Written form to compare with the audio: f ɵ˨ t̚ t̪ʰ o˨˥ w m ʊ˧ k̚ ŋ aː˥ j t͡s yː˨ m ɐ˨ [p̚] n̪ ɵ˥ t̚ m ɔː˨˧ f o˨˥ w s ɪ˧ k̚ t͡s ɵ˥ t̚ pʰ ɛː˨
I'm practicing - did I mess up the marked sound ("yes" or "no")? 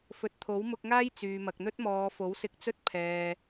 yes